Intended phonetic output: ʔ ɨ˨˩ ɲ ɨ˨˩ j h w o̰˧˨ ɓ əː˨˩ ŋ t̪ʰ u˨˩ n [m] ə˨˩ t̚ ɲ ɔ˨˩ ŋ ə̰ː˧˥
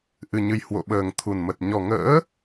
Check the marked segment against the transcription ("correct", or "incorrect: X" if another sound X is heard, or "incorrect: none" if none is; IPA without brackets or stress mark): correct